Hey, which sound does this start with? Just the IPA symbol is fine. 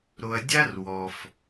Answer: ɾ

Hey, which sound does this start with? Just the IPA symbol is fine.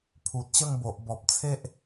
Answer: pʰ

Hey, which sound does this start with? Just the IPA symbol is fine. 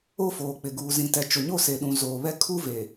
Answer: o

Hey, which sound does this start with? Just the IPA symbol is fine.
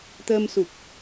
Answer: t̪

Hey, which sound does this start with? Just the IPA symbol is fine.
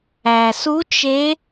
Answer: æ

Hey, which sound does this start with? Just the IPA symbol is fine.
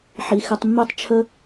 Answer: ħ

